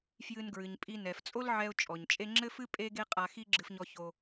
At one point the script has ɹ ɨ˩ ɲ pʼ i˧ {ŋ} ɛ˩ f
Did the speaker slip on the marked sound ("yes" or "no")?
yes